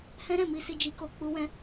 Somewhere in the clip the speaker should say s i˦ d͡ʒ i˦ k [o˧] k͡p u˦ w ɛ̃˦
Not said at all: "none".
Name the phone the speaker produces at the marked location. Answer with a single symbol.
o˦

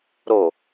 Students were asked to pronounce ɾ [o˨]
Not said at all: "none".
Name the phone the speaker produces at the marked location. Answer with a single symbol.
o˨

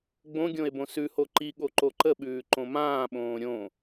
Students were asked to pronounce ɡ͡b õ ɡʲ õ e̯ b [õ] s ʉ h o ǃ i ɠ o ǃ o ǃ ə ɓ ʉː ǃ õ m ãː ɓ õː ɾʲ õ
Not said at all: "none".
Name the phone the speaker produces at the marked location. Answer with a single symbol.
õ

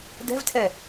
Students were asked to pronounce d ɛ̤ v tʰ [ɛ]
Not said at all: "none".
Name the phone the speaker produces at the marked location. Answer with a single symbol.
ɛ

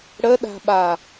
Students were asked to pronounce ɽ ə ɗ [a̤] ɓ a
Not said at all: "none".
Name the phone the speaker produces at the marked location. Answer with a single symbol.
a̤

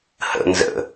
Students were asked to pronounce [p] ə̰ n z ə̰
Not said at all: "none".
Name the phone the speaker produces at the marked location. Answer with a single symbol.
h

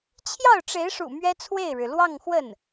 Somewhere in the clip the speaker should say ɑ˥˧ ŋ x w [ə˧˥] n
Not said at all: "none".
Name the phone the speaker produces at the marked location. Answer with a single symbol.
ə˥˩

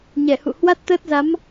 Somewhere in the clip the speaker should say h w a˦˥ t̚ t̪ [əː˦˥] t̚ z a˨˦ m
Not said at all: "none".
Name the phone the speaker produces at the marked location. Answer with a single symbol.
əː˦˥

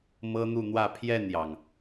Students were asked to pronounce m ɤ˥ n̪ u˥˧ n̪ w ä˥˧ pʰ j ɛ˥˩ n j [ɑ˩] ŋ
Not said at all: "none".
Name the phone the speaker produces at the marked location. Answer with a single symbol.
ɑ˩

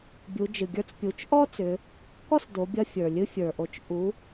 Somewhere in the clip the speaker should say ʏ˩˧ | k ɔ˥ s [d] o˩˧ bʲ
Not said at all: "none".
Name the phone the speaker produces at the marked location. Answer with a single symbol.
d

